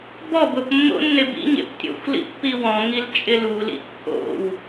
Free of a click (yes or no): yes